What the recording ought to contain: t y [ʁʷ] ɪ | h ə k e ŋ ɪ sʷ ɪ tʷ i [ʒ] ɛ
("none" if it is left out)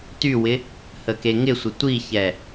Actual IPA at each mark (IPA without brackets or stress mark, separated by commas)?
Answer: w, ç